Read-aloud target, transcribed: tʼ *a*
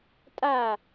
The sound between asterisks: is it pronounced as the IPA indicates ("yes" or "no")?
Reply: yes